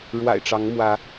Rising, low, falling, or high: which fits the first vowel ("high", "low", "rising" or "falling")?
low